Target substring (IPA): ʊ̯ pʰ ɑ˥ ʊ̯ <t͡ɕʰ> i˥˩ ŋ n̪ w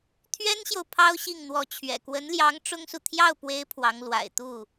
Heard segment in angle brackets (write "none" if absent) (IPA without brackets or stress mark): ɕ